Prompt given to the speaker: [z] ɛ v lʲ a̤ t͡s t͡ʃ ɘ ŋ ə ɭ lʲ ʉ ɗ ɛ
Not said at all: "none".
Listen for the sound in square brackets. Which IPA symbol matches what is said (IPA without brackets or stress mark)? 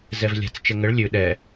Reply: z